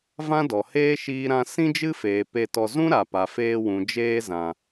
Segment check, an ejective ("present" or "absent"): absent